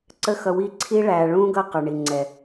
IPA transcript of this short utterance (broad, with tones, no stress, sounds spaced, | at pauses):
ǀ ə˦ x ʌ˧ w i˦ ǀʰ i˦ ɭ æ˨ ɭ ũ˦ ɡ ʌ˦˨ q ə˞˨ ɳ i˨ ŋ͡ǀ ɛ˨